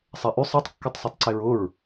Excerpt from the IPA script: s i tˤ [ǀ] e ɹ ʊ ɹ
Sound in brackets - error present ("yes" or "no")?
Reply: no